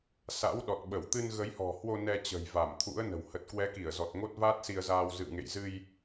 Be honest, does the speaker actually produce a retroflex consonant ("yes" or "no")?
no